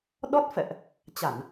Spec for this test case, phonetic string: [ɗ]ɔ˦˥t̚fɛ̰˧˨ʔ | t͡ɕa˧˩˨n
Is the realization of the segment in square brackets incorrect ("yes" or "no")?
no